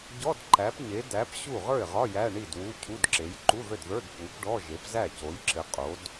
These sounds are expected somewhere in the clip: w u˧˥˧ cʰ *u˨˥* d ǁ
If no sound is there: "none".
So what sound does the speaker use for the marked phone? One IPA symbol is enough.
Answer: u˧˥˧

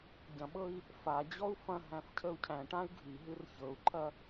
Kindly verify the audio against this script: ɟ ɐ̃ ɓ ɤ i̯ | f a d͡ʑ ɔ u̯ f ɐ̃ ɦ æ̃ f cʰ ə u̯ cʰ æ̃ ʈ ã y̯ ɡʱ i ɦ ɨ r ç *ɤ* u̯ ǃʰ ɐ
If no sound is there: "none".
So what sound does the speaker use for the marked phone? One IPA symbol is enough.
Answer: ɤ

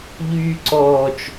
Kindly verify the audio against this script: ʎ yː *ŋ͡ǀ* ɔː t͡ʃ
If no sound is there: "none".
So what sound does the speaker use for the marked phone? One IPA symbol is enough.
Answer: ǀ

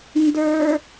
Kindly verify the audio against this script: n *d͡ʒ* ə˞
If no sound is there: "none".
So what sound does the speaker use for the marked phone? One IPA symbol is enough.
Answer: d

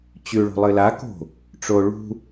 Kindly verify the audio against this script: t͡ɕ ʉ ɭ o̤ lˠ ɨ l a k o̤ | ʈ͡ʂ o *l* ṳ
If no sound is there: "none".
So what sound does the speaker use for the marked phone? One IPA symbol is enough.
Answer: ɭ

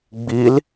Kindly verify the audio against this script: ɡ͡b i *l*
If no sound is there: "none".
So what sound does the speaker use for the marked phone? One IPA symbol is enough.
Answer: l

